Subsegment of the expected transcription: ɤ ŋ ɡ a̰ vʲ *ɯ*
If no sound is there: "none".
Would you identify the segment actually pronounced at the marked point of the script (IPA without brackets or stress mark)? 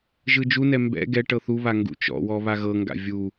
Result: u